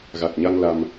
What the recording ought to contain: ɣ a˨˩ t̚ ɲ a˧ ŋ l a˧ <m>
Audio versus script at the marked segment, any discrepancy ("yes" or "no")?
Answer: no